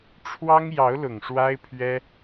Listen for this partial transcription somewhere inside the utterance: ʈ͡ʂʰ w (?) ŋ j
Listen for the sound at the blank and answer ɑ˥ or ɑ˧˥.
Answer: ɑ˥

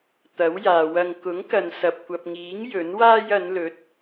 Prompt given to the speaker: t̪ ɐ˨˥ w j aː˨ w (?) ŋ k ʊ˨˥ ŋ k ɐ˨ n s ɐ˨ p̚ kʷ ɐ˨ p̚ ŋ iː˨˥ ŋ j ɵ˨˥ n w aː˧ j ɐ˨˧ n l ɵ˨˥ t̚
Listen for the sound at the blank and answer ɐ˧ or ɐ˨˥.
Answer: ɐ˧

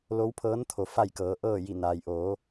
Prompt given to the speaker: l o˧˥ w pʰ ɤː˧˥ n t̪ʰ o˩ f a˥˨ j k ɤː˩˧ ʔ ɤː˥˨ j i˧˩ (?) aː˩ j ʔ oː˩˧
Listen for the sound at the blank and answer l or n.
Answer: n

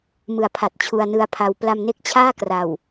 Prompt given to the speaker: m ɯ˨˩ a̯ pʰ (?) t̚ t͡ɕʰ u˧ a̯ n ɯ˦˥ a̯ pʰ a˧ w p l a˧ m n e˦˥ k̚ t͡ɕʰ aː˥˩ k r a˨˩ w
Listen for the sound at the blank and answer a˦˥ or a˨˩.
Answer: a˨˩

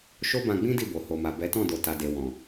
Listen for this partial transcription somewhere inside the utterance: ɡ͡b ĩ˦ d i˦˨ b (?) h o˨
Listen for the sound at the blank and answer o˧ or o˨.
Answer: o˨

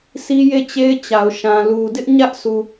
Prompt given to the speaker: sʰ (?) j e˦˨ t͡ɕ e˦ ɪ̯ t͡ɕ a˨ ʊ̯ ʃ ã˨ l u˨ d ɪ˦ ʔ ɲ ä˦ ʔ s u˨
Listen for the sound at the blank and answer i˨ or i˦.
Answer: i˦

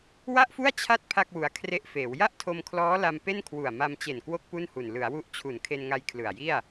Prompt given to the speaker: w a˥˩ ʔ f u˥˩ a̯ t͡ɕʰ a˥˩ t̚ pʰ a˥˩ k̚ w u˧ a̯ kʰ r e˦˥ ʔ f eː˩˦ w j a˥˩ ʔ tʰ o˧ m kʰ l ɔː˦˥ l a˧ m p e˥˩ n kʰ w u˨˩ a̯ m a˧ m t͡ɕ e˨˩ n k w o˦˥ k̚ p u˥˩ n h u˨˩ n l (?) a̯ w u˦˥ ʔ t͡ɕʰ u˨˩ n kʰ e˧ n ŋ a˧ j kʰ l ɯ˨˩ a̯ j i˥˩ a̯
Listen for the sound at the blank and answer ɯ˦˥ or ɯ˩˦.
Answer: ɯ˩˦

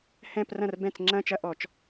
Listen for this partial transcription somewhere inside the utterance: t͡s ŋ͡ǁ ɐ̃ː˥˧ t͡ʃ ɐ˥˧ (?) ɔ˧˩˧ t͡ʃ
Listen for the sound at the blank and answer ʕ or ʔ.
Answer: ʔ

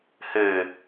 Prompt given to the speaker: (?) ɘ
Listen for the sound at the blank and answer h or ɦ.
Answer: h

